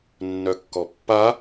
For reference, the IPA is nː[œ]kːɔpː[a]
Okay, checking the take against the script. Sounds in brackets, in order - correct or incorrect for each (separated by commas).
correct, correct